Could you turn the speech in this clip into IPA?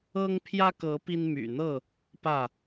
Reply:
ɤ˦ ŋ pʰ j ä˦ k ɤ˨˦ p i˦ n m y̰˨˩ n̪ ɤ˥˨ | p ä˥˨

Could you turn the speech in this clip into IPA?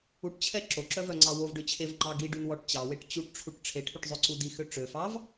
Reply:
u ʈ t͡ɕʰ ɛ ǁ o ǁ œ v œ ŋ͡ǀ ɑ w o v ɖ ø t͡ɕʰ e v ŋ͡ǃ ɑ ɡ i ɖ y n w ɔ ʈ t͡ɕ ɑ w e ʈ t͡ɕ u ʈ ʈ͡ʂʰ u ʈ ʈ͡ʂʰ e ʈʰ y ʈ zˤ ø ǀ u d i x ø ʈ͡ʂ ø f ɑ v

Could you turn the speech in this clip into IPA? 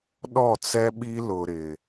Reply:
ɗ ɔ˦˨ t͡s ɛ˦ ɓ i˦ l ʊ˨ ɾ ɪ˨

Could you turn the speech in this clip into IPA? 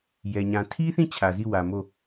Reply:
j ɛ˨ ɲ ã˨ tʰ i˦ θ ĩ˦˨ t͡ɕʰ ä˨ z i˦˨ w ä˨ m o˦˨

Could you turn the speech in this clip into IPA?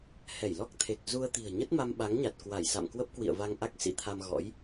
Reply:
h ɛ˧˩ j l ɔ˦˥ k̚ t̪ʰ e˨˩ k̚ z u˧ ə̯ t̪ i̤˨˩ ə̯ ɲ ə˦˥ t̚ m a˧ m ɓ a˨˦ ŋ ɲ a˨˩ t̚ k w a˧˩ j s a̰˧˨ m k w ə˦˥ p̚ k w ḭ˧˨ ə̯ v a˧ ŋ ʔ a˦˥ k̚ s ḭ˧˥ t̪ʰ a˧ m ɣ ɔ̰˧˥ j

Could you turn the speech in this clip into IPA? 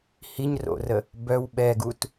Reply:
h i ɲ r o̰ r ə | b œ w ɓ ɛ ɡ u t

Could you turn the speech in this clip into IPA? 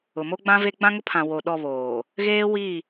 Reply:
ʊ˨ m o˦ ɡ͡b ã˦ v e˦ ɡ͡b ã˦ ŋ ʊ˦ pʰ ã˨ w o˨ ɗ ɔ˦˨ β oː˨ | ɣ eː˦ w i˦˨

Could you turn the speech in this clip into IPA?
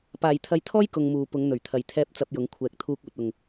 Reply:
p aː˨ j t̪ʰ ɐ˧ j t̪ʰ ɔː˥ j k ʊ˨ ŋ m uː˨ p ʊ˨˧ ŋ n̪ ɵ˨˩ ɥ t̪ʰ ɐ˨ j t̪ʰ ɛː˧ p̚ t͡s ɐ˧ p̚ j ʊ˨˧ ŋ kʷʰ ɛː˨ k̚ t̪ʰ uː˧ k̚ uː˨ t̚ ʊ˨ ŋ

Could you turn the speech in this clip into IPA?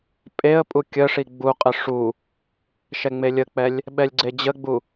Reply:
pʼ e ə̯ pʼ u kʲ ə ʂ i ɡ͡b u qʼ ə ʂ u | ʃ ɛ ŋ͡m e lʲ ə k͡p ɛ lʲ | ɓ ɛ lʲ ɡ͡ǀ e d͡ʑ ə ɡ͡b u

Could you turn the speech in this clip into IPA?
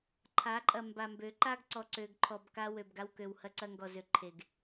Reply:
ǃʰ a˨˦ ǃʼ ɐ˨ m b a˨ m b ø˨˦ ǃ a˦ ɡ ǀ ɔ˨ ǀ ø˨ ɡ ǃʰ ɔ˨ b k a˦ w ø˨ b ɡ a˦ w k ø˨ w h ɐ˦ ǀ ɐ˦ ŋ ɡ ɔ˨ z ø˨ ǃʰ e˨ ɡ

